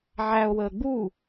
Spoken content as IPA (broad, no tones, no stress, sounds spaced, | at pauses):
ʕ æ o̯ w əː ɡ͡b u